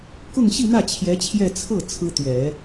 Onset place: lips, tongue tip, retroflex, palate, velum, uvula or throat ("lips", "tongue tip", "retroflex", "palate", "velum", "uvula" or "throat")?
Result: velum